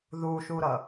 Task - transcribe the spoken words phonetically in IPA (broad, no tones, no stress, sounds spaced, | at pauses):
ð u ʃ u ɾ ʌ